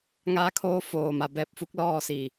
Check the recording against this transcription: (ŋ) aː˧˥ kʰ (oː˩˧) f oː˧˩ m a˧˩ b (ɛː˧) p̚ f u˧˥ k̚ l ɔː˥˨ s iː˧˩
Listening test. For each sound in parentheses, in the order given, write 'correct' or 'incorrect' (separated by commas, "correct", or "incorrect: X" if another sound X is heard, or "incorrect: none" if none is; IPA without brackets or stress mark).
correct, incorrect: oː˧˥, correct